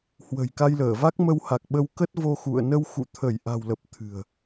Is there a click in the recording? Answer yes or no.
no